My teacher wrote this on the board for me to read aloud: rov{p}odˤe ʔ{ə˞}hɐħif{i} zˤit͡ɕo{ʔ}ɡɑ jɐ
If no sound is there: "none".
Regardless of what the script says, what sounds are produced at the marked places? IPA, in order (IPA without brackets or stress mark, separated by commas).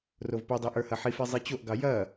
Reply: p, ə˞, e, ʔ